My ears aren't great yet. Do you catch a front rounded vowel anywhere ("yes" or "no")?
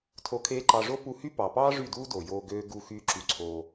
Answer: yes